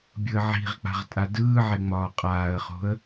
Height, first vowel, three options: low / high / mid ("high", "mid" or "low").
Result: high